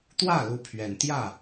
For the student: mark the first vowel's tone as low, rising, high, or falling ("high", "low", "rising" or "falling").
falling